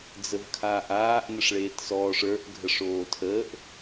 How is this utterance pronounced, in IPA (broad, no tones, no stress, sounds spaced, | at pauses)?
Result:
d͡z ə v kʰ aː ʔ aː ʔ n ə ʂ ɭ eː t s ɔː ʂ ə˞ ʔ ɡʱ ə ʂ oː tʰ əː ʔ